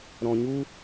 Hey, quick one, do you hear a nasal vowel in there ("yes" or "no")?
yes